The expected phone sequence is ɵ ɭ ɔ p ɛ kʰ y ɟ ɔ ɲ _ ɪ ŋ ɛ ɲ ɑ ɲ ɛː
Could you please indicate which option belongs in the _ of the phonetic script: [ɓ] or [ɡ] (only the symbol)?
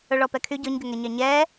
ɡ